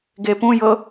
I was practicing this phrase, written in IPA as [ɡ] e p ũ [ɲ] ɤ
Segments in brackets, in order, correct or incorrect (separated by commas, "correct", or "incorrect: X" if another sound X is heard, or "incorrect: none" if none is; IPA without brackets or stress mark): correct, incorrect: j